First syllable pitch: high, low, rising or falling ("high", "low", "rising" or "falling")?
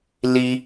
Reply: high